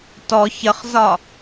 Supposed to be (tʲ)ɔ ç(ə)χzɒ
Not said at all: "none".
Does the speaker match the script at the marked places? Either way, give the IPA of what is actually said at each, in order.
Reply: t, ə

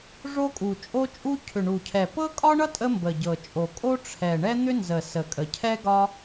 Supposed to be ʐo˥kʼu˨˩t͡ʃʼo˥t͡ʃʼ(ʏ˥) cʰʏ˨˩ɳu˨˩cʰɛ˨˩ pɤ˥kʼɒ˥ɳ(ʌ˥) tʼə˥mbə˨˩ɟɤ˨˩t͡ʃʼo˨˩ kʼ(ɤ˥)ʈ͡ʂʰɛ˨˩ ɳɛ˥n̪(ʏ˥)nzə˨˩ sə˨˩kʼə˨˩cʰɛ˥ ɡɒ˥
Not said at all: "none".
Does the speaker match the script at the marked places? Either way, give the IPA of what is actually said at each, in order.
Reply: u˥, ʌ˥, o˥, ʏ˥

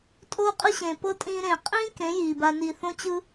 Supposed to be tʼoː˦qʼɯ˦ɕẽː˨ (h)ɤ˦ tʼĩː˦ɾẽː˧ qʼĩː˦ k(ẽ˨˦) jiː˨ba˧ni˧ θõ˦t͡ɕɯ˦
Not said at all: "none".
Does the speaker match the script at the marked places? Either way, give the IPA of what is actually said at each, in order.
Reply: p, ẽ˨˦

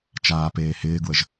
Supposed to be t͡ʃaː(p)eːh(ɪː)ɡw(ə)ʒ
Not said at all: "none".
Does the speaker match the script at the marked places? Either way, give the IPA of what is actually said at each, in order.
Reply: p, ɪː, ə

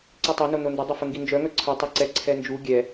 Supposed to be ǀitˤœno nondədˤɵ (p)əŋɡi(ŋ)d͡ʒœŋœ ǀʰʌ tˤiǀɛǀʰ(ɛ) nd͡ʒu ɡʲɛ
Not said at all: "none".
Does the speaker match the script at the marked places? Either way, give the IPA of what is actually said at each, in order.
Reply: f, n, ɛ

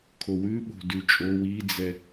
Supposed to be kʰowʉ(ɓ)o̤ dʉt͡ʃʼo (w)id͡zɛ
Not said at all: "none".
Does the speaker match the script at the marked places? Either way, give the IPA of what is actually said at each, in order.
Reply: ɓ, w

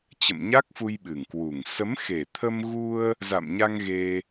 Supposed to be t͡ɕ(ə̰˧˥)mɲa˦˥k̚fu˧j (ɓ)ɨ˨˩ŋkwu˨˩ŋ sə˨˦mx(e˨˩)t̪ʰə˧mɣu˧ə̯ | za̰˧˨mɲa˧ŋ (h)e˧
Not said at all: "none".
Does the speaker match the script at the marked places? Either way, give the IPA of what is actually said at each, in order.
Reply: ə̰˧˨, ɓ, e˨˩, ɣ

